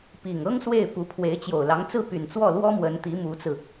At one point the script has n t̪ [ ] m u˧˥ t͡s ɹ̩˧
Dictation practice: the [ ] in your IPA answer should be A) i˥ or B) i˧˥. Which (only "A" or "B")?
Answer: B